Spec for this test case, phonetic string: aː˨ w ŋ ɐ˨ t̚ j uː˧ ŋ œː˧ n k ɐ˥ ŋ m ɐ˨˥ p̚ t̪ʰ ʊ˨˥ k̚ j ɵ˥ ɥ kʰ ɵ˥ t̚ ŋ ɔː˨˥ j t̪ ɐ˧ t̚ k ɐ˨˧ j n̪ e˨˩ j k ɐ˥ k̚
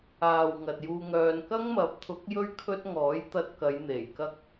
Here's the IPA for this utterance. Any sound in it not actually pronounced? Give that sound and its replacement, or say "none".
none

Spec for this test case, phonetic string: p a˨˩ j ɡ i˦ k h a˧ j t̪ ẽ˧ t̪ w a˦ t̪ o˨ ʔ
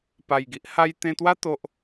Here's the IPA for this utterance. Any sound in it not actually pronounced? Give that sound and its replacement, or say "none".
k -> ʔ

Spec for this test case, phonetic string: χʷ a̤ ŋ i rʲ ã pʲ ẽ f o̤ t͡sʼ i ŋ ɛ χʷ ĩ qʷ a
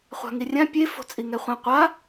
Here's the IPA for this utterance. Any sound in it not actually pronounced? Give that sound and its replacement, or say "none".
ẽ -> e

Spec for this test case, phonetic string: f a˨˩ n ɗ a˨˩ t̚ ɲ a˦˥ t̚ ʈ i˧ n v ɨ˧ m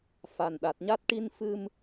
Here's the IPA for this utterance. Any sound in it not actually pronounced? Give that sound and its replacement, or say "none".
v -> f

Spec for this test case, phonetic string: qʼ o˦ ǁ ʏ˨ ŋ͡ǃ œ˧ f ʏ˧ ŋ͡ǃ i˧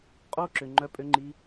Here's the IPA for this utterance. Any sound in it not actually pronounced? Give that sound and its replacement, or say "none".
f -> pʼ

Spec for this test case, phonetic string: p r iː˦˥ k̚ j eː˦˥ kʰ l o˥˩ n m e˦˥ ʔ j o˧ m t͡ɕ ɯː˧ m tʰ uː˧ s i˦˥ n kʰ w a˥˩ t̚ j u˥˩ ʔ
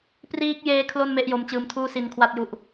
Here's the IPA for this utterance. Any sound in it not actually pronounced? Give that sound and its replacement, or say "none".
uː˧ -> uː˥˩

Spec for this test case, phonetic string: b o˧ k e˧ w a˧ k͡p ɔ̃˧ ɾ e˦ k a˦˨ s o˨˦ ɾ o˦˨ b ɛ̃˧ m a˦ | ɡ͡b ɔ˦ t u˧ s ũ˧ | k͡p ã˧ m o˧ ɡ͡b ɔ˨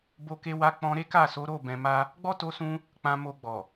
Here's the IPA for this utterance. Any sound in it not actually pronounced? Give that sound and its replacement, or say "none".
u˧ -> o˧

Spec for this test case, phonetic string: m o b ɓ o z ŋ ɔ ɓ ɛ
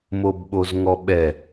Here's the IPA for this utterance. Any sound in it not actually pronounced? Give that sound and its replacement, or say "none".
none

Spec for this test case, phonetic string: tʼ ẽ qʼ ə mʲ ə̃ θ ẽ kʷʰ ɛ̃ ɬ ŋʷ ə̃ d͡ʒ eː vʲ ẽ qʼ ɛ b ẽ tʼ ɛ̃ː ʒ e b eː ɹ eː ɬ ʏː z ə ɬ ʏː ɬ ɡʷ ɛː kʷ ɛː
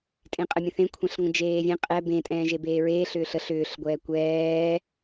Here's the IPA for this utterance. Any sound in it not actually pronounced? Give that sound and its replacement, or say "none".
z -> ɬ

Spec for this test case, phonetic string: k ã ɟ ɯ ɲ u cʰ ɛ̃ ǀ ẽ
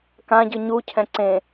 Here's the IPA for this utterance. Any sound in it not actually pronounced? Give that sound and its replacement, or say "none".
none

